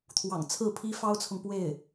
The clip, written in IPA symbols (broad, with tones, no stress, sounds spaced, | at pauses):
t̪ʰ w ɑ̰˨˩ ŋ t͡sʰ ɹ̩˥˩ pʰ i˥ f ɑ˥ ʊ̯ t͡sʰ ʊ˨ ŋ p w e˥˩ ɪ̯